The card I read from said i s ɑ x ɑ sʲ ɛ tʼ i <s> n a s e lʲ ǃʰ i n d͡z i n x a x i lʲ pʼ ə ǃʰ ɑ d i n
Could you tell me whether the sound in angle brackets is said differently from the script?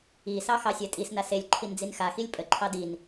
no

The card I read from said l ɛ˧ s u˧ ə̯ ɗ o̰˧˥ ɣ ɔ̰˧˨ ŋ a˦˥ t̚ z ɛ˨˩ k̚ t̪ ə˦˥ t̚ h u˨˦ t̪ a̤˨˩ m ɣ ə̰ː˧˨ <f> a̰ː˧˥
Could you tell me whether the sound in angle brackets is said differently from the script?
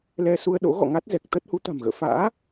no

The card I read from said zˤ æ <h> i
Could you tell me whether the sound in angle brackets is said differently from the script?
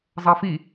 yes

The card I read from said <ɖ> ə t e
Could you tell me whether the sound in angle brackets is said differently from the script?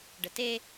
no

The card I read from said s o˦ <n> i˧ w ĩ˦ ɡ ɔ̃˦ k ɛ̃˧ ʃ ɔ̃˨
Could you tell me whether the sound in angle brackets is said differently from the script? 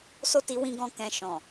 yes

